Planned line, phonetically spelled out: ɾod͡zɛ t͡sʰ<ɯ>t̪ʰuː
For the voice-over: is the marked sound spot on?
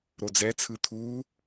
yes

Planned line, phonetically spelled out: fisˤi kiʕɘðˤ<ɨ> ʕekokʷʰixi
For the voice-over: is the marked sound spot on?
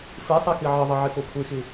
yes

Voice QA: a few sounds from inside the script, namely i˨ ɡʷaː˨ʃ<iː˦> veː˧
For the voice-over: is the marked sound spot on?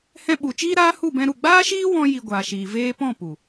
no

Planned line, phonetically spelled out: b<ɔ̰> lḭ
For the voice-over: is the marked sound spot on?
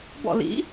yes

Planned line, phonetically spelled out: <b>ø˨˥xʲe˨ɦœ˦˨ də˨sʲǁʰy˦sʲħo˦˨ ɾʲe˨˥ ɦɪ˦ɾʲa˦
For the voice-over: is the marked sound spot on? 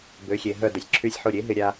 yes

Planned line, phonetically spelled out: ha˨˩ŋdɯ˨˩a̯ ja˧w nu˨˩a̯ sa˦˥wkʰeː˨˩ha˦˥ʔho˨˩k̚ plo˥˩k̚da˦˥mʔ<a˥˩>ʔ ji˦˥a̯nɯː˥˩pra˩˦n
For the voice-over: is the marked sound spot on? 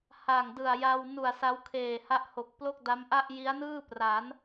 yes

